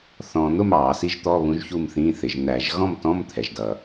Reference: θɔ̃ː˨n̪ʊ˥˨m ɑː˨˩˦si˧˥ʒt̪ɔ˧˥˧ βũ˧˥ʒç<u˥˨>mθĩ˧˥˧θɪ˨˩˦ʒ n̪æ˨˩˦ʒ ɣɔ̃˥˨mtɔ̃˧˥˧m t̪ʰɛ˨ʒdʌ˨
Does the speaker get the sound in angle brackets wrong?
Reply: no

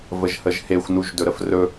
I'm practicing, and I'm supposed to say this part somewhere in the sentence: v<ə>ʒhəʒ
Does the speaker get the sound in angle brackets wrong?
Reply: no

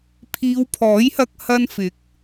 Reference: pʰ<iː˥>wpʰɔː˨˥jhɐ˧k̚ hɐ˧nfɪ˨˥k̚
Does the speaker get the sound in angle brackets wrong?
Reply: yes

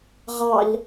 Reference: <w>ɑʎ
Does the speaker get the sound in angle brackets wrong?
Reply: yes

